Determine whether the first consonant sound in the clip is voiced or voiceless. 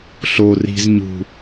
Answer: voiceless